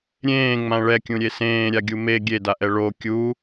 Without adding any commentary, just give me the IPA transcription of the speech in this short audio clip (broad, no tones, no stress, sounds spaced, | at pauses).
ɾʲ ẽː ŋ͡m ã ɭ ɛ kʲ ũ ɾʲ e s ẽː ɾʲ a ɡʲ u m e ɡʲ e d a ʔ ɛ ɭ o kʲ u